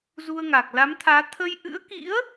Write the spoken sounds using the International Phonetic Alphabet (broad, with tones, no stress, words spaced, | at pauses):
zu˧ə̯ŋa˨˩k̚ la˨˦mt̪ʰaː˨˦ t̪ʰə˧j ʔɨ̰˧˥ə̯kḭ˧˥ə̯